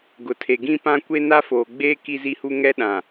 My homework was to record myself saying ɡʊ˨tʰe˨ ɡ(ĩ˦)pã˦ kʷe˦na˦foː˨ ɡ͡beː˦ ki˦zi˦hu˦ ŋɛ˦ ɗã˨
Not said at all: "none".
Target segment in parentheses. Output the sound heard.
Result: ĩ˦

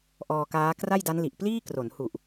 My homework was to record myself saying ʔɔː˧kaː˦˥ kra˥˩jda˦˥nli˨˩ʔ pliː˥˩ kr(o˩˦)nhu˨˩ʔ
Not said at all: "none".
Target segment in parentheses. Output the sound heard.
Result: o˩˦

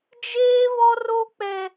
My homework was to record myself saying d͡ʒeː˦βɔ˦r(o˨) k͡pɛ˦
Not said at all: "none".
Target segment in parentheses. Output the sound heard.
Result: o˦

